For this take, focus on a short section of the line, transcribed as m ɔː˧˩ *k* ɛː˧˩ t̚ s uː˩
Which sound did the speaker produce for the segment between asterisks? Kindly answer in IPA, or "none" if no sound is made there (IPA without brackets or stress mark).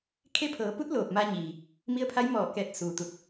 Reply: k